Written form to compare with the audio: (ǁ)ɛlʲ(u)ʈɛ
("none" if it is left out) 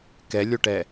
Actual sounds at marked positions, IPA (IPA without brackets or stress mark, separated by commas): k, o